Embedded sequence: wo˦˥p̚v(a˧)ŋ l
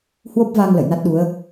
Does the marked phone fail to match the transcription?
no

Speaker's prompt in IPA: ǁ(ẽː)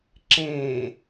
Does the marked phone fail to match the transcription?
no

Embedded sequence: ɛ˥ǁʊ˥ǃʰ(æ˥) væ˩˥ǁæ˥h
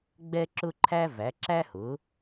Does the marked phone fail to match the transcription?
no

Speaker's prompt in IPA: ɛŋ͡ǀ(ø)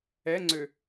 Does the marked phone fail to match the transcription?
no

